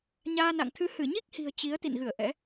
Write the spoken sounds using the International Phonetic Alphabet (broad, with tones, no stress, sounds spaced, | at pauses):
ɲ aː˧ n a̰˧˨ ŋ t̪ʰ ɨ˧ h ɨ˧˩ ɲ i˦˥ k̚ h i̤˨˩ ə̯ t͡ɕ i˨˦ ə̯ t̪ ḭ˧˨ n ɣ ɨ˧˩ ə̯ ʔ ɛ̰˧˥